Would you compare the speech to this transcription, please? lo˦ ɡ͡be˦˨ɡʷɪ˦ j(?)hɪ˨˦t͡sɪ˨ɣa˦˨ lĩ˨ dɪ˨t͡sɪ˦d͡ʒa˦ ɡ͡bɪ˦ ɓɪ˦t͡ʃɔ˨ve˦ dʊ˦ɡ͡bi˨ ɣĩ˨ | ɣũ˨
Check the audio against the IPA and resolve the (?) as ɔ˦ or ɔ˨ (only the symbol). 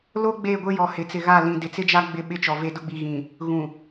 ɔ˨